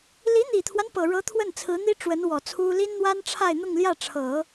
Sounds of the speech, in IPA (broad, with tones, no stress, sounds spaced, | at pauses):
l i˧˥ n̪ i˨˩ t̪ʰ w a˦ n p ɤ˨˩ ɻ ɤ˧˥ t̪ʰ w ə˥˩ n t͡sʰ ɹ̩˧˥ n̪ i˥ ʈ͡ʂ w ə˧˥ n w ɔ˨˩ t͡sʰ u˥ l i˥ n n̪ w a˥ n ʈ͡ʂʰ a˥˧ ɪ̯ n̪ ʊ˥˧ ŋ l j ä˥˩ ʈ͡ʂʰ ɤ˨˩˦